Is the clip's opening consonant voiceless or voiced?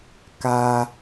voiceless